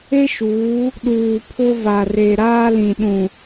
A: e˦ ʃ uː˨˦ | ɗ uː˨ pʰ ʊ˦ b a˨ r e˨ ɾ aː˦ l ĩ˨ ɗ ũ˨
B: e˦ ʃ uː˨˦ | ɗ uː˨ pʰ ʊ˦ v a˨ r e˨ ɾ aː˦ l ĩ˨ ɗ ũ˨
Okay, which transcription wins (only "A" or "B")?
B